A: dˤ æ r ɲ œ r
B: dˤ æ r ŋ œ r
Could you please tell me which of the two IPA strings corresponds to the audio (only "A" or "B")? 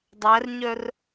A